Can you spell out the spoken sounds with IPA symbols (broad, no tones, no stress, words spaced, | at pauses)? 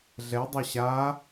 ɮɛdˤɐ ɕa